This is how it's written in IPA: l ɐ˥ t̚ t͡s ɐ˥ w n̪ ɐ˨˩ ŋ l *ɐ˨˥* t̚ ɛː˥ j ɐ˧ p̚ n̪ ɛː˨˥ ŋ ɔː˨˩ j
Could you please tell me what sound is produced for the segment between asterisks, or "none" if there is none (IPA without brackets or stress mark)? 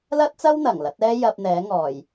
ɐ˨˥